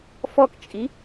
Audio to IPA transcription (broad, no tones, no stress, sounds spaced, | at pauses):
f ɔ k t͡ʃʼ i